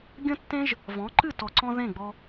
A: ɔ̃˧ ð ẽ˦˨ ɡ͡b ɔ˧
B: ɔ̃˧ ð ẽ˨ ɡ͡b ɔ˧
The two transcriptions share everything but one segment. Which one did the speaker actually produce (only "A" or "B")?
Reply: A